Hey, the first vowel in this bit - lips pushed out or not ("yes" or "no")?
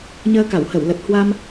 no